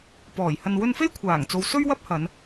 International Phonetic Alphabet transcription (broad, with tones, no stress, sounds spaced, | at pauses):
p ɔː˨˩ j h ɐ˧ n w ɵ˧ n f e˥ j kʷʰ aː˨˩ ŋ t͡s o˨ w s ɵ˥ ɥ w ɐ˥ p̚ h ɐ˨˧ n